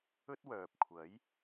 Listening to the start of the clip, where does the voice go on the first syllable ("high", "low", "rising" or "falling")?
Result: high